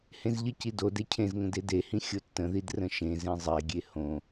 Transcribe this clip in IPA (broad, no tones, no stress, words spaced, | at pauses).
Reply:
hẽzʎəci dode cʰẽzŋə̃ dedehĩ xʲotːə̃ðid rə̃ʃẽzẽ zˤeɡʲe hõ